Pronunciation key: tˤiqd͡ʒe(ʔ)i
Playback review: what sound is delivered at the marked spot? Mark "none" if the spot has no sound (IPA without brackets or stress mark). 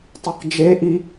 ʔ